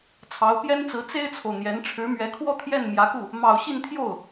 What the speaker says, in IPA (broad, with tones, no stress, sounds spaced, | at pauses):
t͡sʰ ɑ˧˥ ʊ̯ p j ɛ˥ n t͡s ɹ̩˧˥ t͡s e˥ ɪ̯ t͡sʰ o˨ ʊ̯ n̪ j ɛ˧˥ n ʈ͡ʂʰ ɻ̩˧˥ m ɥ ɛ˧˥ kʰ w ɔ˥˧ t̪ʰ j ɛ˥˩ n m j ä˧˥ k u˥˩ | m ɑ˨˩ ʊ̯ ɕ i˥˧ n t̪ʰ j o˥˩ ʊ̯